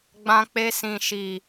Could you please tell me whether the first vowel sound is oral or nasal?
nasal